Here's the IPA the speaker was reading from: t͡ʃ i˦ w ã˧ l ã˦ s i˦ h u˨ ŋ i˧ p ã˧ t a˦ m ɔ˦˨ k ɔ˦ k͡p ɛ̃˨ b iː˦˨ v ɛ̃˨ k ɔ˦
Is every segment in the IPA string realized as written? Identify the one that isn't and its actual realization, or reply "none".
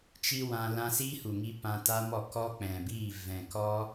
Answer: none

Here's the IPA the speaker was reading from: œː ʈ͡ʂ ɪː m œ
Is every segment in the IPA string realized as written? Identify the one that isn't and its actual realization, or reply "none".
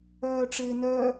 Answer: m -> n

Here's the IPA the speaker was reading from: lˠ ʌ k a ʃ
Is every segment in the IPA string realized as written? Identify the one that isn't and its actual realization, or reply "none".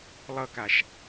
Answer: none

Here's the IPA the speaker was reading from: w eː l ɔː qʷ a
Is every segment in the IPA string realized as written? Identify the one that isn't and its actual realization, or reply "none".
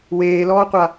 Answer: none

